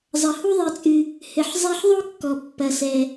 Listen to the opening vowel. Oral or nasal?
oral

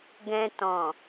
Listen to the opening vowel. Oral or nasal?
nasal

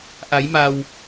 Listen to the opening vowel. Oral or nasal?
oral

